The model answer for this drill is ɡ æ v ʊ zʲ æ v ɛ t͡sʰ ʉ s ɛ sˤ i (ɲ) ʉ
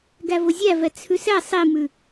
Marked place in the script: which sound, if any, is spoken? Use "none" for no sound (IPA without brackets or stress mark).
m